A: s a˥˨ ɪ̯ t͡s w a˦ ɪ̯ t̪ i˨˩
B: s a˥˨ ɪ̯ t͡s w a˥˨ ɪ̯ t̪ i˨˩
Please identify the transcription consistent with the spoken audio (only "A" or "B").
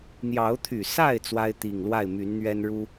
A